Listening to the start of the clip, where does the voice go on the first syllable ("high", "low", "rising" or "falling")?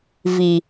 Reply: low